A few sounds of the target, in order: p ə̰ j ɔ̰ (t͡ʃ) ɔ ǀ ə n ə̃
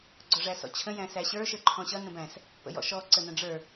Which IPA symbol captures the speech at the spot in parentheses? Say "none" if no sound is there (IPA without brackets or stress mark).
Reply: ʃ